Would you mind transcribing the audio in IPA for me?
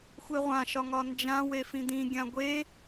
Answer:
xʷ e ʁʷ ã ʃ ɒ ŋ ɒ n d͡ʒ ã w e f ĩ d̪ ĩ ɡʲ ã ɡʷ e

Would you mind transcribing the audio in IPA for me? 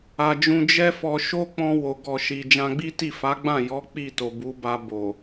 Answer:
a˨ d͡ʒ ũ˧ d͡ʒ ɛ˦ f ɔ˧ ʃ o˦ k͡p ɔ̃˧ w o˨ ɡ ɔ˨ ʃ i˨ d͡ʒ ã˧ ɡ͡b i˦ t i˦˨ f a˨˦ ɡ͡b ã˦˨ j ɔ˨˦ k͡p i˦˨ t o˨ b u˨˦ b a˧ b o˨

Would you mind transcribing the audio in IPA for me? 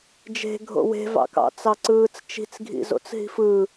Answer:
d͡ʒ e̤ ɡʱ o̰ w e̤ v ɑ̰ k ɑ̰ t͡s ɑ ǀ ɯː t͡s t͡ʃ i̤ t͡s ɡʱ ḭ z o̰ t͡s ɦ i̤ f ɯ

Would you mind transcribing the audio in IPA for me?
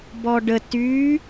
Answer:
b ɔ ɖ ə t yː

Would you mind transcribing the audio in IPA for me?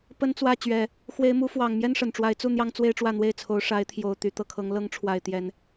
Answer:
p ə˦ n t͡s w ä˥˨ t͡ɕ ɥ ɛ˨˦ | x w e˨˦ ɪ̯ m u˨˦ f w ɑ˨˩ ŋ m j ɛ˦ n ʂ ə˨˩ n ʈ͡ʂ w a˨˦ ɪ̯ t͡s u˥˨ n̪ j ɑ˦ ŋ t͡s w e˦ ɪ̯ ʈ͡ʂ w ä˥˨ n̪ w e˥˨ ɪ̯ t͡sʰ o˨˦ ʊ̯ ʂ a˨˦ ɪ̯ t̪ʰ j o˨˩ ʊ̯ t̪ y˨˦ t̪ ɤ˨˩ kʰ ɤ˨˦ ŋ l ɤ˨˦ ŋ ʈ͡ʂʰ w a˨˩ ɪ̯ t̪ j ɛ˨˦ n

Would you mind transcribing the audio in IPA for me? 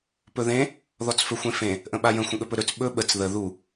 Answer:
p ɵ ð ẽ | ð ɔ t͡s f ɵ xʷ ẽ f ẽ | ʔ ə̃ ɓ a j ə̃ xʷ ə̃ ɠ ɵ p ɵ ɾ ɵ t͡s ɓ ɵ ɓ ə t͡s ð ə ð u

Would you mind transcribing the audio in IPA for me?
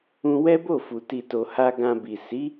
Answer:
ũ˧ w ɛ˦ b o˦˨ f u˨ t i˨ t o˨ h a˧ ɡ ã˧ b i˨ s i˨˦

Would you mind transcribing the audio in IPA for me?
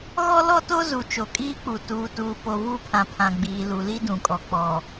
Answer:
ɣ ɔ˦ l ɔ˦ t o˦ z u˨ t͡ʃ o˨ kʼ iː˦ k͡p u˨ t uː˨ t uː˨ p o˨ v u˦˨ pʰ ã˨ pʰ ã˨ ɡ͡b iː˨ l u˨ l i˦ d ũ˨ kʼ ɔ˨ k͡p ɔ˨

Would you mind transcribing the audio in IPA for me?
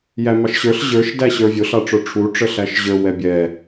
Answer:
j æ m ɑ ʃ ɕ ə˞ ɬ ʑ ə˞ ʃ d æ ɕ ə˞ vʲ ʊ ɬ ɑ ʈ͡ʂ ə˞ ʈ͡ʂʰ u ʈ͡ʂ ə ɬ æ ʃ ʑ ə˞ w ɛ bʲ ɛ

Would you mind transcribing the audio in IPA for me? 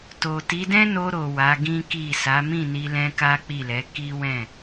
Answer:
t o˨ t i˨˦ d ɛ̃˦ n o˧ ɾ o˨ w a˨˦ ɡ ĩ˦ k i˦˨ s a˨˦ m ĩ˦˨ n i˧ l ɛ̃˦ k a˦ k͡p i˦˨ l ɛ˨˦ k i˦ w ɛ̃˦˨

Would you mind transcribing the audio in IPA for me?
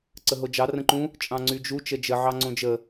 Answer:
ǀ ə ɦ o d͡ʒ ɑ r ə̃ ǃ ũ | t͡ʃʼ ɑ̃ ŋ͡ǀ y d͡ʒ u t͡ʃ ə d͡ʒ ə ʕ ɑ ŋ͡ǀ õ d͡ʒ ə

